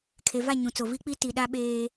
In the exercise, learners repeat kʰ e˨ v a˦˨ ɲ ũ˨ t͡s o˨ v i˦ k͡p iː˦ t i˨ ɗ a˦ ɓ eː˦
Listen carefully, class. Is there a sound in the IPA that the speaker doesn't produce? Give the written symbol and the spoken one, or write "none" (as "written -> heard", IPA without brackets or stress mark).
iː˦ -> i˦